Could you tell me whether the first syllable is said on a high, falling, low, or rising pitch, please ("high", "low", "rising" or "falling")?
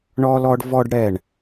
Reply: high